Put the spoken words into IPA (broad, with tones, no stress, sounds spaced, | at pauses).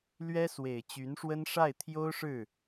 l ɥ ɛ˥ s w e˨˩ ɪ̯ t͡ɕ y˧˥ n ʂ w ə˥ n ʂ a˥˩ ɪ̯ t̪ʰ j o˥ ʊ̯ ʂ ɻ̩˥˩